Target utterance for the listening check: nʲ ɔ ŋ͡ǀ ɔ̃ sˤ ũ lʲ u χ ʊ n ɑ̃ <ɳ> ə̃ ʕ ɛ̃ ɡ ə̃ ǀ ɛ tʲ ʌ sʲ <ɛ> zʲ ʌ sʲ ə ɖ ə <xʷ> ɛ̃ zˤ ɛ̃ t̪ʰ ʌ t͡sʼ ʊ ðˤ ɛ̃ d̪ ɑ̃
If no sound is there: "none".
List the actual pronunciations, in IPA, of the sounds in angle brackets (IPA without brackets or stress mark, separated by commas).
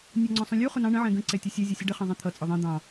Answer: ɳ, ɛ, χ